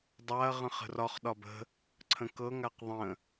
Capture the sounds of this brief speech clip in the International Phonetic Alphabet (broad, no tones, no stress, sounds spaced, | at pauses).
dˤ a ɐ̯ ʁ ə̃ χ ə̤ r ɒ χ ɗ ɒ b ə̤ | ǀʰ ə̃ k ɤ ŋ a q ðˤ ə̃